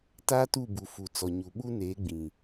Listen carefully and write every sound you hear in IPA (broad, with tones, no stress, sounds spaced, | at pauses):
t aː˦ t u˦˨ b u˨ f u˨ t͡s ɔ˨ ɲ u˨ ɓ u˦ n eː˨˦ ɡ͡b ĩ˨